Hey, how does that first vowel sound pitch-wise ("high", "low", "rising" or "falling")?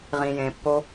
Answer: low